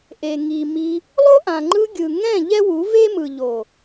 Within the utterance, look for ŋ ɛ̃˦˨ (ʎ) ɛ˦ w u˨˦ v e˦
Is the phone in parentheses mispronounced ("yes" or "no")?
no